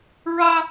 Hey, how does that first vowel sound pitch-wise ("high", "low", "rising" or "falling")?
high